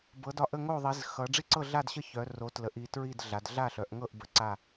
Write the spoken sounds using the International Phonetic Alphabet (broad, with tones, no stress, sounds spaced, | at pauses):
b ɤ˩˧ d ɒ˩˧ ʔ ə˥˨ ŋ o˥˨ ðˤ i˩˧ z x ʌ˩˧ ɖ͡ʐ i˥˨ ǀ ɤ˥˨ ɮ a˥˨ d ɕ ə˥˨ ç œ˩˧ r o˩˧ t l ə˩˧ ʔ i˩˧ t ɹ i˥˨ d ɮ a˩˧ d ɮ a˥˨ ɬ œ˩˧ ʔ ŋ ɤ˥˨ ʔ b ə˩˧ ǀ a˥˨